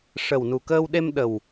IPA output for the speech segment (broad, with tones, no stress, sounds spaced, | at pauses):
ʂ ə˨˩ w n u˨˩ k əː˧ w ɗ e˧ m ɗ ə˨˩ w